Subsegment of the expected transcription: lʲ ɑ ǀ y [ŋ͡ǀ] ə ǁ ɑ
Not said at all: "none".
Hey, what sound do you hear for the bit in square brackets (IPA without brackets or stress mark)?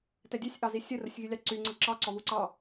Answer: ŋ͡ǀ